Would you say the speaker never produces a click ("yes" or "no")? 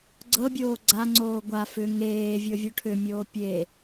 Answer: no